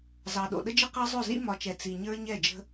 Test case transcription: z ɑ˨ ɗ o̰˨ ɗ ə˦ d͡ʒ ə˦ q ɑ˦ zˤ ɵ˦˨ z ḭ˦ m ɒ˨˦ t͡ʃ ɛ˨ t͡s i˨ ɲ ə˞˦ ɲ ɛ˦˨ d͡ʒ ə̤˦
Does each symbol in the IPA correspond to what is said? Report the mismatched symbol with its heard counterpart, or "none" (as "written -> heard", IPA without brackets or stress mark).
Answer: none